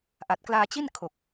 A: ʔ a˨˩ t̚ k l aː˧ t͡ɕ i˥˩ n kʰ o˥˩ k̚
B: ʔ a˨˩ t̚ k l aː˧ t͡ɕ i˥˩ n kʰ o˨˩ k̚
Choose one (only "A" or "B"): B